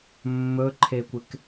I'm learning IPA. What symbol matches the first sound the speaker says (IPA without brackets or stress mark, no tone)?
mː